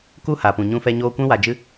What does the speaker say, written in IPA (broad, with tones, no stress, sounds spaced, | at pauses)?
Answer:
k u˦ h a˨ p ũ˨ ɲ ũ˧ f ɛ˧ ɲ oː˧ kʷ ɛ̃˦ w a˧ d͡ʒ ɨ˦